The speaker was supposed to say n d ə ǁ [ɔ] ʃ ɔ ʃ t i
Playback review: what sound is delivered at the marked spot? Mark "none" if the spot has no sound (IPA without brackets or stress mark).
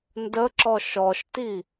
ɔ